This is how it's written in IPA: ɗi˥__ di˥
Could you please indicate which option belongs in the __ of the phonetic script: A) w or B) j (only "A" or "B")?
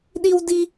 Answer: A